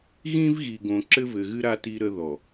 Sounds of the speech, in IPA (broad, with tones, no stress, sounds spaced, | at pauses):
ɣ ĩ˦ v ɣ i˨ ɡ õ˨ ǁ ɘ˦ v ɘ˨ ɣ ɨ˦ ɾ a˦ t i˦ ɾ ə˦ ð ɔ˨